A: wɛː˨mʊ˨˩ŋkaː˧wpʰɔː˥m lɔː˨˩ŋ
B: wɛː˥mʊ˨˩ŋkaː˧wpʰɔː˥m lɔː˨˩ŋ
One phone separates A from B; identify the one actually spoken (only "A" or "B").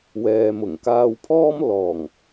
A